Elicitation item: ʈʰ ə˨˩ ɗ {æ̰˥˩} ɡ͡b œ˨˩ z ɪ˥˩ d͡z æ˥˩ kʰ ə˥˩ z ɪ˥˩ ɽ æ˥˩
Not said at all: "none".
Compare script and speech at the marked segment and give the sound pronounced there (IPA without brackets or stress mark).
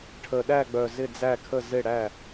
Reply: æ˥˩